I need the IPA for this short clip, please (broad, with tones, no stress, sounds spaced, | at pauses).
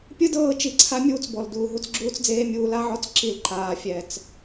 pʲ ɯ˦ d ɤː˦˨ t͡ʃ i˨ ǀʰ a˦ mʲ uː˦ t͡s b ɔ˨ l d uː˨ ɦ u˦ t͡s ɡ͡ǁ uː˦ t͡s d͡z eː˦ mʲ uː˧ l a˦ ʕ ɔ˦ t͡s ǁ i˨ l ǃ aː˨ fʲ ɛ˨ t͡s